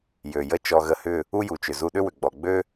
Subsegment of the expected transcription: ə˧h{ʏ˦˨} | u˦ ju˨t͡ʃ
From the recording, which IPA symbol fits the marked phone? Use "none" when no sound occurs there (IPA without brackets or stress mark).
ʏ˦˨